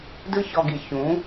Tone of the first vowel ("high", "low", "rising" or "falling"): high